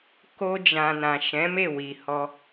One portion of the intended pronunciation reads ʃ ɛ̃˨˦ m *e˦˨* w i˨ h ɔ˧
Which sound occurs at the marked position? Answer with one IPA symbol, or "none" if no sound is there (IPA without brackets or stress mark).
e˦˨